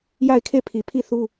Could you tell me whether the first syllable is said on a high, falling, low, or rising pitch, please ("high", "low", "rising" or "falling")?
falling